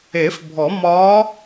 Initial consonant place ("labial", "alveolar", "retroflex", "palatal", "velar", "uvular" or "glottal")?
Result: labial